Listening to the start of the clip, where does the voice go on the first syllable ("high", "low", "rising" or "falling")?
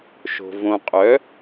low